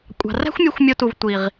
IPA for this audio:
kʷʼ ɑ̤˨ r æ̤˦ xʷ mʲ u˧ xʷ mʲ o˧ t u˨ v tʷ i˨ ʁ

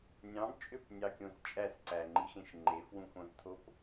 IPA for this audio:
nʲ ɑ̃ b t͡ʃʼ ø p nʲ ɑ kʲ õ z t͡ʃʼ æ s ǀ æ ŋ͡ǃ i x ẽ ʃ ŋ͡ǃ e f w ũ f õ z tʰ o p

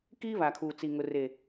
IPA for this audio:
k iː˦ β a˨ kʰ uː˨ t͡s i˨ ŋ ʊ˨ r e˨

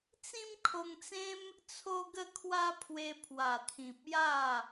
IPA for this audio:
t͡s ĩ˦ m kʰ o˧ ŋ t͡s ẽ˦ m | t͡sʰ o˦ ɡ ə˥˧ kʰ w a˦ pʰ w e˧ pʰ w a˨˩ t̪ʰ ĩ˨ p̚ j a˥˧

